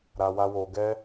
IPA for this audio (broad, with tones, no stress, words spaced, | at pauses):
ɾa˨wa˧wo˨ ɡɛ˧